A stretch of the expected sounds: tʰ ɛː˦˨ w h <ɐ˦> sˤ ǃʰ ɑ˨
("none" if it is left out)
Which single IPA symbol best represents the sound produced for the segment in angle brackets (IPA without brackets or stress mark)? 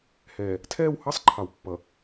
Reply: ɑ˦